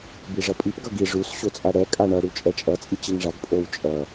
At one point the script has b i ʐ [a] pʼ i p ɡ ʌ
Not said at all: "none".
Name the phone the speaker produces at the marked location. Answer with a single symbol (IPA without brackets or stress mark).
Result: ʌ